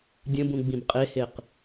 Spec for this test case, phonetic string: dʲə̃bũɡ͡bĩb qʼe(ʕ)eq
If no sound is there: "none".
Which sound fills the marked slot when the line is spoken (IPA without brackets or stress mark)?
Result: h